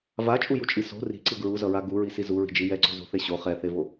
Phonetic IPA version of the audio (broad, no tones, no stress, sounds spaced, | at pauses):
v a t͡ʃʼ u j u t͡ʃʼ i s o̤ r i̤ ǀ ɯ ɡ ɹ u z ʌ ɹ a ɡ u ɹ i s i z u ɹ i̤ d͡ʒ i j ɛ ǀ o̤ z o̤ θ e ɕ o χ ɛ θ e v o